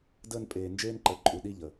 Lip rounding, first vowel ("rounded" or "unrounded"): unrounded